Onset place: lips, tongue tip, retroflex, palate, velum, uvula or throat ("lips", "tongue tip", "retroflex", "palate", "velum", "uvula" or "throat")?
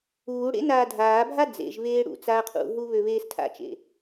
retroflex